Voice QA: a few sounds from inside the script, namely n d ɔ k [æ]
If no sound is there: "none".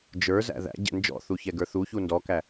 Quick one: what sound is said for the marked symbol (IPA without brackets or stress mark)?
æ